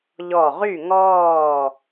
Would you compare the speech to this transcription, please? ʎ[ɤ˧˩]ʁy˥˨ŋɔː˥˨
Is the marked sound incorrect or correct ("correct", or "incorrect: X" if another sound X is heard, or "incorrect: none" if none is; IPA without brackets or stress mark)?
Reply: incorrect: ɔ˧˩